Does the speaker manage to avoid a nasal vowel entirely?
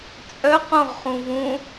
no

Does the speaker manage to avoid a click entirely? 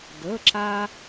no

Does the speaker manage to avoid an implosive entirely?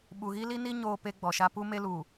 no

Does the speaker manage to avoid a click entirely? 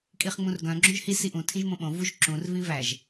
no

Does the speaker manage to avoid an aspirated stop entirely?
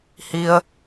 yes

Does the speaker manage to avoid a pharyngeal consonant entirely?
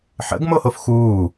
no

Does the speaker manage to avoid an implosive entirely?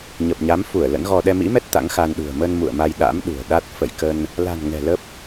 no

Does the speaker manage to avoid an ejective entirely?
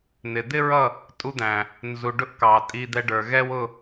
no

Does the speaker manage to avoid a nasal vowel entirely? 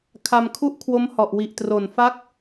yes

